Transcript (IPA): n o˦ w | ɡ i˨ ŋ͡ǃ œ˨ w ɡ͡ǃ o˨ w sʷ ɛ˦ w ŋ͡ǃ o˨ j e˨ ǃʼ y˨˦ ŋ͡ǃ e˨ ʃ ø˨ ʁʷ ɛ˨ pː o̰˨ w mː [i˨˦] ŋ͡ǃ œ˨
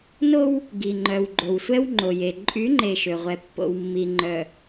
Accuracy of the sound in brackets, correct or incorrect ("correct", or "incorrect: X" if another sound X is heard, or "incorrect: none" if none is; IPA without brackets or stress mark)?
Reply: incorrect: i˨